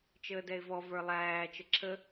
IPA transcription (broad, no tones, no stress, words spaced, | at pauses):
t͡ʃəːdɛɪ̯vɔ və˞lˠæː t͡ʃəǁʰə